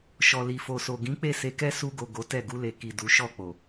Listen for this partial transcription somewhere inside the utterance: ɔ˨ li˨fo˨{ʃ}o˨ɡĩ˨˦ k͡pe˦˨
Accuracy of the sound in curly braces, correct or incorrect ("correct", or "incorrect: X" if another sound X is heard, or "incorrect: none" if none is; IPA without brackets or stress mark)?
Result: incorrect: s